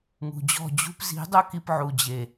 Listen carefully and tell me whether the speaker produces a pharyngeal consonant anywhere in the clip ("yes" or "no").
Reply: yes